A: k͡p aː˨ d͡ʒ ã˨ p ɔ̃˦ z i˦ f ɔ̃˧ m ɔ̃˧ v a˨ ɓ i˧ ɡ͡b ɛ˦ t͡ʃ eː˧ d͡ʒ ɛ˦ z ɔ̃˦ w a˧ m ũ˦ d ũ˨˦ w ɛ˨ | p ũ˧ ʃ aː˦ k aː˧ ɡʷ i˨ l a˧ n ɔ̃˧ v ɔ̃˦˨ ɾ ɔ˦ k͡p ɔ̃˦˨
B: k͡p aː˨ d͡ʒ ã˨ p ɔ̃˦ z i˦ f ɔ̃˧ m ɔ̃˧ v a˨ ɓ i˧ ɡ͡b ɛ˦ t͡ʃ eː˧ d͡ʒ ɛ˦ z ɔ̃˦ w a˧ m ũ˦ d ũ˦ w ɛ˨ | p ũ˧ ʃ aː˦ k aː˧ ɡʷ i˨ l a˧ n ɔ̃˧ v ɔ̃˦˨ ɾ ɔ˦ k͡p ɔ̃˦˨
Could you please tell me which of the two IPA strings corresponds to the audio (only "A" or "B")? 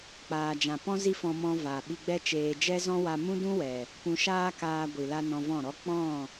B